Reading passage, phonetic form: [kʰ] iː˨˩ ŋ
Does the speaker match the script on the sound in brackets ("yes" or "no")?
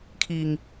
yes